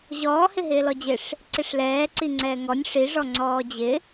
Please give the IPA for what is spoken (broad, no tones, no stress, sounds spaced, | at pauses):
ʑ ɔː h ɪ ɦ ɪː l ɔ d͡ʑ ɪ ʂ | ǀ ɪ ʂ l ɛː ǀ i ŋ͡ǀ ɛː ŋ ɔ nʲ ʂ i ʐ ɔ ŋ͡ǀ ɔː d͡ʑ ɪ